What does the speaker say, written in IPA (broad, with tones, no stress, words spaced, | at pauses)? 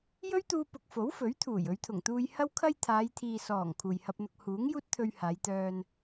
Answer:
jɵ˥ɥt̪uː˧pʊ˨k̚ fo˨˥wfɵ˨˥ɥ t̪ʰuː˨˩j ɵ˨˧ɥt̪ʰʊ˨˩ŋt̪uː˧j hɐ˧wkʰɐ˧j t̪ʰaː˨˧jt̪ʰiː˨ sɔː˨˩ŋ kʰuː˨jhɐ˧p̚n̪ʊ˧k̚ huː˨˥ŋ juː˥t̚t̪ʰɵ˧ɥ haː˨˧jt̪œː˧n